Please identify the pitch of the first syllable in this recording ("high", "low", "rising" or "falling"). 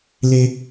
high